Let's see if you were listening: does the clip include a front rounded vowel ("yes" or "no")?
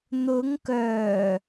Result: yes